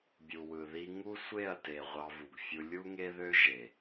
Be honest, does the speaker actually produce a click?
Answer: no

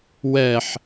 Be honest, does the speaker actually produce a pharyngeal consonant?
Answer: yes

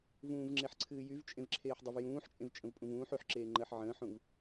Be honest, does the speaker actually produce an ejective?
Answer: yes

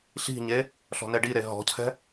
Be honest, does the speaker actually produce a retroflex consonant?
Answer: yes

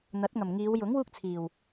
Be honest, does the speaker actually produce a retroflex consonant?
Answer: no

